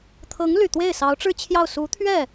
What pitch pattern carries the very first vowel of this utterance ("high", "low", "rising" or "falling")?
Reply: rising